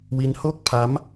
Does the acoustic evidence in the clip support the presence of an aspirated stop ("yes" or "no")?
yes